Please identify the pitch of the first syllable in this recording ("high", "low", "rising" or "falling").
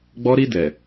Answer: high